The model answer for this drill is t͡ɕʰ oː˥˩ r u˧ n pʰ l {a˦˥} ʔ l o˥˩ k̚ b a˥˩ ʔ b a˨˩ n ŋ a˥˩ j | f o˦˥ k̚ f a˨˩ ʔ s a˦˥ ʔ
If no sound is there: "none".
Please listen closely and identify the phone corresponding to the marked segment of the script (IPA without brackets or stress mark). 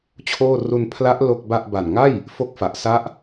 a˦˥